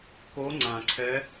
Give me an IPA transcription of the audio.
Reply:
ko˧˥ŋ͡ǀã˨ǀʰɛ˧˥

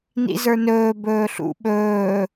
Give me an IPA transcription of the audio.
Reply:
nḭzə˞nɵː bɵːɬṵ ɓɵː

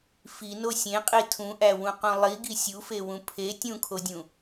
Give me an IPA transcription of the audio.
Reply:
fino sʲẽqʼi tʰũʔæwũqũ lˠiɡi sʲufewũ pʰe tʲũkʰodʲũ

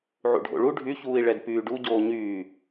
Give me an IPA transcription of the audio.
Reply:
ʕṵɖʱo̰ɭu ɖʱyçuːi̯ ɭɛdpyːɖu ɟoːɲyː

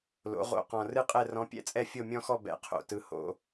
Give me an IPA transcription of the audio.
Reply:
lo̰˩˧ʁo̰˨˩ qɔ̃˨˩rɨ˥˧qʼɛ˥˩ rɔ̃˧˥ pʲɛ̰˧˥t͡sʼɛ˥˩ fʲo˥˩mʲɔ̃˥˧xɔ˥˩ bɛ̰˨˩qʰo̰˨˩ tɯ˩˧ho̰˩˧

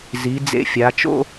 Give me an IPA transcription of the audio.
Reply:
zi˩˧ d͡zḛ˧fʲa˩˧t͡ʃo̰˥

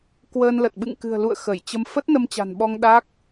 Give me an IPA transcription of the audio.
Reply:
kwəː˧nlə˨˩t̚ ɓɨ̰˧˨ŋkɨ̤˨˩ə̯lṵ˧˨ə̯ xə˧˩j t͡ɕə˧m fə˦˥t̚nə˧mt͡ɕa̤˨˩nɓɔ˧ŋ ɗa˦˥k̚

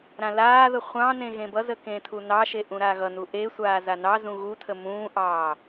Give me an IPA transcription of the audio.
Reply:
ɾãlaːðə χʷɑ̃nẽ ɣẽbʌzə kẽtʰunɑʃe ʔũɾaɣʌnu ʔesʷaː zanɑzũ ɣutʰə mũːʔɑː

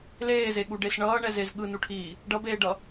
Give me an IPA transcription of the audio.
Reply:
leːzeɠuɖes ɳʌːɳɛzez ɠɯnuʈʰiː | ɖʌbeːɖʌ

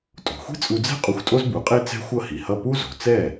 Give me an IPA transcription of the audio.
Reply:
tʼo̤˩xʷi̤˥t͡sʼu˧d͡zɛ̤˥ qʼu˧xʷtʼo˥zbu˩˥qʼe˥ t͡sɛ̤˥xʷʌ˥˩hi˩hʌ˥˩ pu˥ zo̤˩ t͡sɛ˥˩

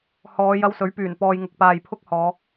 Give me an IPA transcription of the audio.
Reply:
hɔː˨˧ jɐ˧wsɵ˨˥ɥpyː˨˩n pɔː˨jŋʊ˨k̚paː˨j pʰʊ˥k̚hɔː˨˧

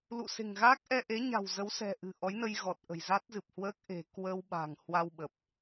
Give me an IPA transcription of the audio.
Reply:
lṵ˧˨se̤˨˩ŋɣaː˦˥k̚ ʔɛ˧ʔe˨˦ɲa̤˨˩w zə˨˦wsɛ̤˨˩ʔɨ̤˨˩ ʔɔ˨˦jnə˧jɣɔ˨˩t̚ ʔə̤˨˩jza˦˥t̚zɨ˨˩p̚hwəː˦˥k̚ ʔe̤˨˩kwəː˧wɓa̤˨˩ŋ hwa˧wɓə˨˩p̚

